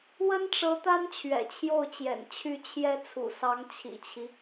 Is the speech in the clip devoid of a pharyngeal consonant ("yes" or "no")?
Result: yes